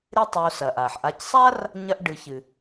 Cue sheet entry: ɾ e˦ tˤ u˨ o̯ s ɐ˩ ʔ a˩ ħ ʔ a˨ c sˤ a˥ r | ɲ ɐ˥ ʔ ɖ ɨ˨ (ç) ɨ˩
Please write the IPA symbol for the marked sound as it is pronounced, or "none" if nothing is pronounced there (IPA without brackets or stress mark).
ç